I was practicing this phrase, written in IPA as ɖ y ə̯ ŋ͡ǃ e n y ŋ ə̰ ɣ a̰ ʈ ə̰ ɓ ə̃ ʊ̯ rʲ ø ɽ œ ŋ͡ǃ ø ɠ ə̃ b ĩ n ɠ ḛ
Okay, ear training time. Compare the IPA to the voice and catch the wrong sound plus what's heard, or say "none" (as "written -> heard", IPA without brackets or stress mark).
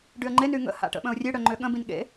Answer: ɣ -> h